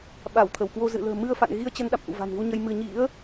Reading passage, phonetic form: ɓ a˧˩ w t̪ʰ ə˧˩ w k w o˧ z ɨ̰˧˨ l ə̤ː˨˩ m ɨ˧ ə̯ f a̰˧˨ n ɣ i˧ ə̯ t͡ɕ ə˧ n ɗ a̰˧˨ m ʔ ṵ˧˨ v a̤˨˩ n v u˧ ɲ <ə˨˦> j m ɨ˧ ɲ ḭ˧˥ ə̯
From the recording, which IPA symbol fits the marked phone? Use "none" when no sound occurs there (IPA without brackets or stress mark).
ə˧